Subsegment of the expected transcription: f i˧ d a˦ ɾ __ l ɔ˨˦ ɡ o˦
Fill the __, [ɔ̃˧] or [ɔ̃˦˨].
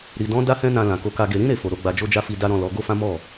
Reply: ɔ̃˦˨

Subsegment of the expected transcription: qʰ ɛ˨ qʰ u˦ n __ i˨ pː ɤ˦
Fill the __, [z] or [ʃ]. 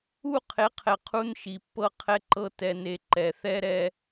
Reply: ʃ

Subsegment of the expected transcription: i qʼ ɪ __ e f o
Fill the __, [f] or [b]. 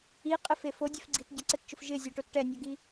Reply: f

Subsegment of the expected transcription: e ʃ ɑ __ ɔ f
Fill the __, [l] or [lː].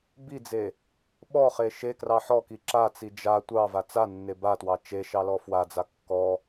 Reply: l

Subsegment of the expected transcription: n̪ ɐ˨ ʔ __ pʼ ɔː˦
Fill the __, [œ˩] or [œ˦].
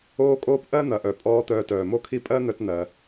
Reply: œ˩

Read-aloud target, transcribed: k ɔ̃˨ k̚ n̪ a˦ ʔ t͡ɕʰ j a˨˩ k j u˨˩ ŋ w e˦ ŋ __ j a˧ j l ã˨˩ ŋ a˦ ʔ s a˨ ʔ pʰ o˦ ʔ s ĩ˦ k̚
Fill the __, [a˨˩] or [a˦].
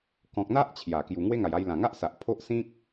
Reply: a˨˩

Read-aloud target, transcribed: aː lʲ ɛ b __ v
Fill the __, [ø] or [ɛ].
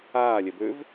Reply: ø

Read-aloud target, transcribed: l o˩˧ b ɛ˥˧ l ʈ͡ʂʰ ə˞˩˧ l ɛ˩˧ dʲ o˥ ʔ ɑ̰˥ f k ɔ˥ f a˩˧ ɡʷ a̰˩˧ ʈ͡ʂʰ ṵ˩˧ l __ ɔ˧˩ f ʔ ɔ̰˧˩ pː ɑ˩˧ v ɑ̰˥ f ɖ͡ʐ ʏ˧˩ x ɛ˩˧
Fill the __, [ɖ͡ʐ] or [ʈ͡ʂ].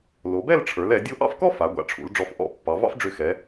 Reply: ɖ͡ʐ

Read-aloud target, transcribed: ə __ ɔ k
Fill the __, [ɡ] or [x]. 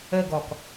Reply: ɡ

